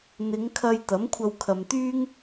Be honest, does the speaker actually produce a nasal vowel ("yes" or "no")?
no